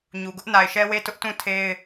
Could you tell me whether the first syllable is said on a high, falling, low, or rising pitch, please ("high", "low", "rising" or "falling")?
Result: low